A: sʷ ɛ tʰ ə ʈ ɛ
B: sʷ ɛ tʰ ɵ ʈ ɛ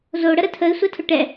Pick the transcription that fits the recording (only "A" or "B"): B